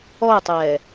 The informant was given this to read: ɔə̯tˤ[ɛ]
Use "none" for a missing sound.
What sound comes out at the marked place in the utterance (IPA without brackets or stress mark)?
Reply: ɛː